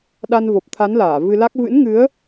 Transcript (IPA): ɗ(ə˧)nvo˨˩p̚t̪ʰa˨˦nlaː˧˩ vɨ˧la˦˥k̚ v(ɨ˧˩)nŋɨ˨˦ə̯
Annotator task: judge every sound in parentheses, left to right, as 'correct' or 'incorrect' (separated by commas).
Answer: incorrect, incorrect